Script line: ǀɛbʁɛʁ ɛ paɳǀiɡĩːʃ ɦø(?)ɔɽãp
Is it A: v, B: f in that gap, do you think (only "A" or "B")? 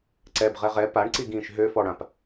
B